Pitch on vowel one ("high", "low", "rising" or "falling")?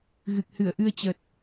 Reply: low